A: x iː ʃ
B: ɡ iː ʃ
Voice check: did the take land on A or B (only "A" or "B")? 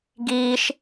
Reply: B